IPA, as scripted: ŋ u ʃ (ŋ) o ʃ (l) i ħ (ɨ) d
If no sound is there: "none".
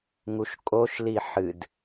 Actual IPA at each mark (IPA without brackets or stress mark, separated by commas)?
kʼ, l, ɨ